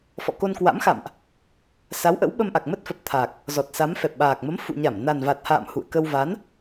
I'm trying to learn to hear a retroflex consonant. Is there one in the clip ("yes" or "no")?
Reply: no